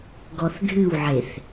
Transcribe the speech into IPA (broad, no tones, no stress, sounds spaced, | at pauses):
ɡ ɔ θ dʱ ɨ w ʕ e θ